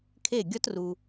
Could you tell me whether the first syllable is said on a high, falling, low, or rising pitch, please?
falling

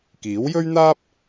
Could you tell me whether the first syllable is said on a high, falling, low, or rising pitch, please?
rising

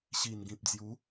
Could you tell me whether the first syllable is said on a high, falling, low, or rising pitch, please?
low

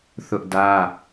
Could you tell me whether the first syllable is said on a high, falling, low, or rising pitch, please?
high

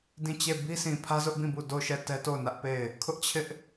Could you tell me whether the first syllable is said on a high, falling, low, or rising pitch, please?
falling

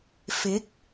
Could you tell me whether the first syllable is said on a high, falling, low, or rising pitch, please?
rising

